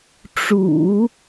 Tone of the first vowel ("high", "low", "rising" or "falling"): low